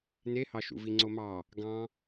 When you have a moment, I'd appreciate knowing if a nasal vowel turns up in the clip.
yes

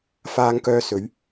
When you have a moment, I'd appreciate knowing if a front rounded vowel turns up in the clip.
yes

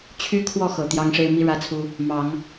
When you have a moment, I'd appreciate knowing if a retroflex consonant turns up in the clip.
yes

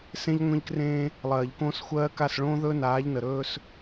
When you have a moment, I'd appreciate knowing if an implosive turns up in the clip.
no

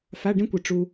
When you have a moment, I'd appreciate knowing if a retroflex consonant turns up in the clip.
yes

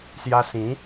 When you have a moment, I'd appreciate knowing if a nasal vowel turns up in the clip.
yes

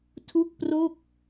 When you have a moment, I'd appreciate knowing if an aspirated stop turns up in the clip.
yes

